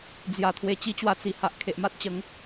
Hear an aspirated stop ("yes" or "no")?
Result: yes